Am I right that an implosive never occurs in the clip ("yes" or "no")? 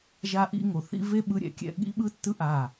no